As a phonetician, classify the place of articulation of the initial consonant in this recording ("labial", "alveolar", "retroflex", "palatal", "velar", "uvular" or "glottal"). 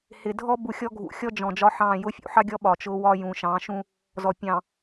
glottal